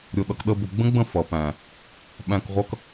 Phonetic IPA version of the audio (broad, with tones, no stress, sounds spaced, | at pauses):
ɾʲ ʊ˨ ɗ ʌ˨ k ɗ ə˧ b ʊ˨ ɡ͡b ə̃˦ ɡ͡b ə̃˦˨ f ʌ˨ p æ̃˨ | ɓ æ̃˧ k ʁʷ ʌ˦ k